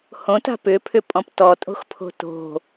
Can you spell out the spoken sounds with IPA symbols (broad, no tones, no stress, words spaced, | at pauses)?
hõta̤ pʏpʰʏpʼɔ̃p tɔtʼo̤xpʰo̤ to̤